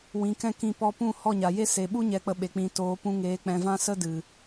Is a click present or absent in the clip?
absent